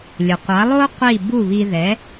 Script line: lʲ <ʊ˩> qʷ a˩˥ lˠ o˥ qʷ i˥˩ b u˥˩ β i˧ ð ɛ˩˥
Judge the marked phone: correct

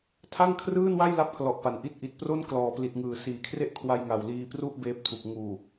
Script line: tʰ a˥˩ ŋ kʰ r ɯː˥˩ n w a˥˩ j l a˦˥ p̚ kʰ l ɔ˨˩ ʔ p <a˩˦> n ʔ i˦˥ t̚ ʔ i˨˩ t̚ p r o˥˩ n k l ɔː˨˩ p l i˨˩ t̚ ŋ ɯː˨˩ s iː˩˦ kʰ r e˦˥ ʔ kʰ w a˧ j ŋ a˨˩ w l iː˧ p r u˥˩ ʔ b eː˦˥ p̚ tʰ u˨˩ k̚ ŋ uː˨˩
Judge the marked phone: correct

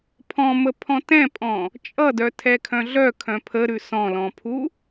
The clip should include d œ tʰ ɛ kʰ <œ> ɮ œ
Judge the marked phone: incorrect: œ̃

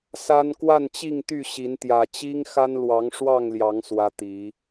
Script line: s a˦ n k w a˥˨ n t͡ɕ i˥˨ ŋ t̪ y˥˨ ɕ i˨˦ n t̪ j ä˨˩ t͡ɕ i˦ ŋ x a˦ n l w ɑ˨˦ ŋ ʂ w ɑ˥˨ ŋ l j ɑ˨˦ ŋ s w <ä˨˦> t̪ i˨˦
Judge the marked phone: correct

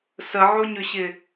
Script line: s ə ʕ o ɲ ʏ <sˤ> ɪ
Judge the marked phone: incorrect: ɕ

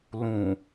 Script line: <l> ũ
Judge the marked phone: correct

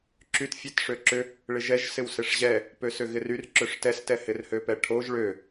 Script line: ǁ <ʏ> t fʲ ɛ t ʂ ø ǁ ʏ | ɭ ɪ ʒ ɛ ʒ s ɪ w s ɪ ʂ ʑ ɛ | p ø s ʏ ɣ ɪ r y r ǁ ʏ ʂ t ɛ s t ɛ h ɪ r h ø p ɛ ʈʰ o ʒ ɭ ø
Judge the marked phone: incorrect: y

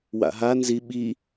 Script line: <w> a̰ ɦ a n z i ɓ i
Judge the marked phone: correct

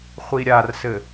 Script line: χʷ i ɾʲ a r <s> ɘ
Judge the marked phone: correct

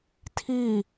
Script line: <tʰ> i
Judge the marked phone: correct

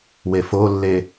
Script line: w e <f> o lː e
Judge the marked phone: correct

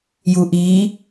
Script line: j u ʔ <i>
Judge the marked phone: correct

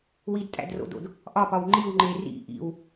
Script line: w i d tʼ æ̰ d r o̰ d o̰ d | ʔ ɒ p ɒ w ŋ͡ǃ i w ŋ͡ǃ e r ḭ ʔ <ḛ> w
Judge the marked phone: incorrect: ḭ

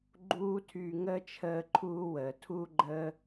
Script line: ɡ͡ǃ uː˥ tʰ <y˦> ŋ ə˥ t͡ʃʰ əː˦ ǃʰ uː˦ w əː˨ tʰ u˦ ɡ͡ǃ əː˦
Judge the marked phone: correct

